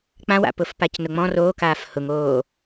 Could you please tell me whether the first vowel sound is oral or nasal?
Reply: nasal